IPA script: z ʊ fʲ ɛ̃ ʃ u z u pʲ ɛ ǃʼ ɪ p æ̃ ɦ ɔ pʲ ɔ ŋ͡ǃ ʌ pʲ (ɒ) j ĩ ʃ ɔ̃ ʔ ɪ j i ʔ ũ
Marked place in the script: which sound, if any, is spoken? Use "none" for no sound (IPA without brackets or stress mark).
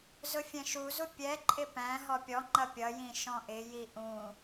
ʌ